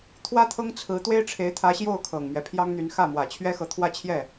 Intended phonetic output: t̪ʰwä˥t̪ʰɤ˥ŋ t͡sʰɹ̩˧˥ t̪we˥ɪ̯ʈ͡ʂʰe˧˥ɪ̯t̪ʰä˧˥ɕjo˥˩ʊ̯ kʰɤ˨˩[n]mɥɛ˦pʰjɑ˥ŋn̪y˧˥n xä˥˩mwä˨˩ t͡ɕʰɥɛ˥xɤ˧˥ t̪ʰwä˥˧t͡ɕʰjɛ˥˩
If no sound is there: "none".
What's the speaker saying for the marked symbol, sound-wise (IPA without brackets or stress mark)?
ŋ